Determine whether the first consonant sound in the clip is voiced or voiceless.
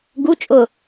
voiced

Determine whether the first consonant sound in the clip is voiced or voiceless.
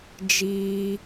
voiced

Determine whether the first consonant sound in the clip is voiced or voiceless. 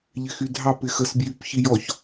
voiced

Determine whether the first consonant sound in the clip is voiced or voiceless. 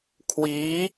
voiceless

